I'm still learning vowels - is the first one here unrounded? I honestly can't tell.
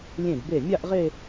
yes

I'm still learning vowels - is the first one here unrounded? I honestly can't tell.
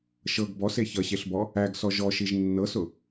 yes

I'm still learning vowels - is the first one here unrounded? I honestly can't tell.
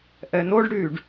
yes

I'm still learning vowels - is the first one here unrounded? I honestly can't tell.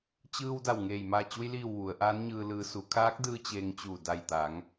yes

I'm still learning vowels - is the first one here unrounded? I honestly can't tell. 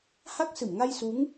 yes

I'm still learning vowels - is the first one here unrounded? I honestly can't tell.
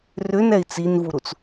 no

